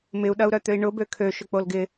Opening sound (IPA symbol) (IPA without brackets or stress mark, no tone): m